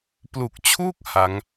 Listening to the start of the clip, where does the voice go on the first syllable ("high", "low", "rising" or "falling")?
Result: low